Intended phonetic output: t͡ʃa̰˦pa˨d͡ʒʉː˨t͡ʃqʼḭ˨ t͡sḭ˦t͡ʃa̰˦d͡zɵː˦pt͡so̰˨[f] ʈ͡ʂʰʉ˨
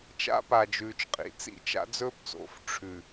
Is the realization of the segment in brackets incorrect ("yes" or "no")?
no